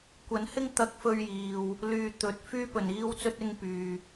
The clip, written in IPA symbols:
kʷ ɐ˨˥ n h ɪ˥ ŋ t̪ ɐ˧ k̚ f ɵ˧ ɥ j iː˨ w | l yː˨ t̪ ɵ˨˥ t̚ f yː˥ p ɵ˨˩ n iː˥ w t͡s ɵ˥ t̚ ɪ˥ ŋ p yː˧

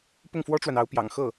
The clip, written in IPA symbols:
p ʊ˥˩ ŋ f w ɔ˥ ʈ͡ʂ w a˨ n ɑ˧˥ ʊ̯ p j ɑ̰˨˩ ŋ x ɤ˥˩

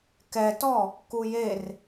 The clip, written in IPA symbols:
k ɛ t ɔ | k u j e r

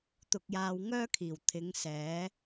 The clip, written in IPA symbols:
t̪ ʊ˧ k̚ j aː˧ w ŋ œː˥ kʰ iː˨˩ w t̪ʰ ɪ˨˧ ŋ s ɛː˨˥

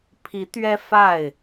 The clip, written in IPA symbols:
pʰ i˨˦ t̪ ɥ ɛ˦ f a˥˨ ɪ̯

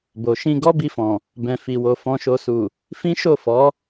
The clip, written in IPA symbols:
b o˨ ʃ ĩ˧ ɡ ɔ˦ b i˧ f ɔ̃˨ | b ɛ̃˨ f i˨ w o˨ f ɔ̃˨ ʃ o˨ s u˨ | f ĩ˦ ʃ o˦˨ f ɔ˨˦

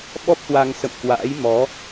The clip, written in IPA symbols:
ɓ ɔ˦˥ p̚ h w a˧ ŋ s ə̰˧˨ m k w a̰ː˧˥ j m ɔ˨˦

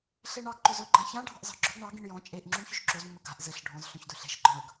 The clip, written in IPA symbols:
ɬ e ɳ ɑ ɡ ǃ ɵ z ɵ ɡ͡ǃ ã ç ã ɖʱ ɑ̤ ʔ z ɑ̤ ɡ͡ǁ ɵ ɡ ɳ ɑ ɡ ĩ ɳ j ɔ̃ t͡ʃʼ e ʔ ŋ͡ǁ u ɳ ç ɵ ʃ ǁ o z mː ɘ ɡ a̤ ʔ z ɘ ɬ ɖʱ ɔ̃ z ɬ œ̃ ç d ɵ ɬ e̤ ʃ ɡ͡ǃ ɔ̃ ɳ ɵ ɡ

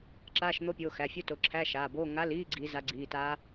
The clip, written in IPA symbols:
ǁ aː˧˥˧ ʃ n̪ o˦˥ pʲ oː˩˧˩ x æ˩˧˩ fʲ o˦˥ t o˩˧˩ ǁʰ æ˧˥˧ ʃ aː˩˧˩ b oː˧˥˧ ŋ a˧˥˧ l iː˧˥˧ ɡ͡ǀ i˨˦ z a˨˦ ɡ͡ǀ iː˩˧˩ t aː˦˥

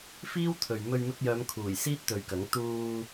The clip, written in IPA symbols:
f iː˥ w t̪ʰ ɵ˨ ɥ m ɵ˧ ɥ m ɪ˧ k̚ j œː˨˧ m kʰ uː˨˩ j s iː˥ t̚ t̪ ɵ˨˧ ɥ k ɐ˨˥ ŋ t̪ uː˧

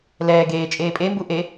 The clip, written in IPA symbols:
l ɛː ɡ eː t͡ʃʼ eː pʼ e m b u ʔ e

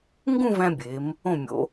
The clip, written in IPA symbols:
ŋ ɡ ũ˥˧ v æ̃˧ bʲ eː˩˧ m | õ˧˩ mʲ o̰˩˧

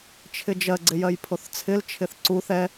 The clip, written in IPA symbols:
t͡ʃʰ ɪ d͡ʒ ɜ ɡ͡ǀ ɪ j ɜ j pʰ o θ t͡sʰ ɪ l t͡ʃʰ ɪ θ ǀ u θ ɛ

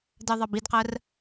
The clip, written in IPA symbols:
d ɜ ðˤ ɑ b i d q ɜ r

